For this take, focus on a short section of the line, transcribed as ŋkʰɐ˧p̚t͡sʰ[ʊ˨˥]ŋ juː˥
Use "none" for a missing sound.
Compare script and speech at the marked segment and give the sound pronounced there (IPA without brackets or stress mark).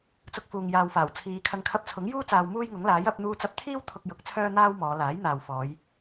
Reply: ʊ˨˥